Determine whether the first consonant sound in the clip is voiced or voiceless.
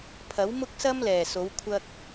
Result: voiceless